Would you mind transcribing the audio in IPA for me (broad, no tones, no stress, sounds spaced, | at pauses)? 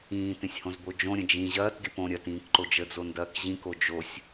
ĩː t ẽ sʲ h õ z b o d͡ʒ õ ɾʲ ə̃ d͡ʒ ĩ ʑ ɐː t ɡʲ ə p õ ɾʲ ɐ t ĩː k ǃ o d͡ʒ ə d͡z o n d ɐː k ʑ ĩ k o d͡ʒ o sʲ